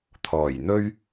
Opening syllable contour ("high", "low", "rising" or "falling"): low